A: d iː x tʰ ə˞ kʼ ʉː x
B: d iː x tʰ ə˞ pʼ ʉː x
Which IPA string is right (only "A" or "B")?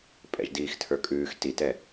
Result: A